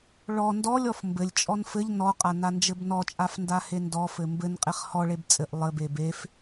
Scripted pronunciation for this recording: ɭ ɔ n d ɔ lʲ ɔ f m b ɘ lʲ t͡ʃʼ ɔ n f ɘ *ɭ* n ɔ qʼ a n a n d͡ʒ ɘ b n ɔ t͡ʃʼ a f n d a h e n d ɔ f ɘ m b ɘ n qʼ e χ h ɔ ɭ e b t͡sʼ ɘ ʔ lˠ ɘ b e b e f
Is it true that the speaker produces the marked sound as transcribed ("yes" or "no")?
no